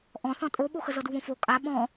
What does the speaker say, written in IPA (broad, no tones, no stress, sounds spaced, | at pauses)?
ʔ ɔ̃ θ ɔ̃ tʼ o ɓ o x ə z ɤ d u β õ f o kʼ a ɓ ɔ̃